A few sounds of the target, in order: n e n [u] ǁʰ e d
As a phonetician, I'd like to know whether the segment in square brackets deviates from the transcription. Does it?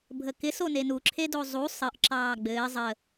no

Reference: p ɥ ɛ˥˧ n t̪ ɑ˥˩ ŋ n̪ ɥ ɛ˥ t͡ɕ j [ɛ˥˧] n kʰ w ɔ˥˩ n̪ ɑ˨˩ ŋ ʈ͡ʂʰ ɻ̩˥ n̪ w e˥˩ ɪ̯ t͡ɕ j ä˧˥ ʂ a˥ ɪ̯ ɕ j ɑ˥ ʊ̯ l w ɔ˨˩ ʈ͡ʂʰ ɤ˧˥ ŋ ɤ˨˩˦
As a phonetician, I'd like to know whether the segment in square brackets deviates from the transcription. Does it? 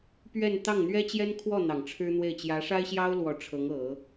yes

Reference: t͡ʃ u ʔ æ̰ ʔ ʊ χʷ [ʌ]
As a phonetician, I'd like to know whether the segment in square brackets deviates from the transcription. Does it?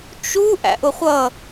no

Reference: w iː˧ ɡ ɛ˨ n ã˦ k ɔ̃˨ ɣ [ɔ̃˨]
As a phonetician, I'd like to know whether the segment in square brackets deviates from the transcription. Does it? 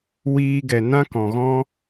yes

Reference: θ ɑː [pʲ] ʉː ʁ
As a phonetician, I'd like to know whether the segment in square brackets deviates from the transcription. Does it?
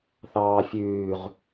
yes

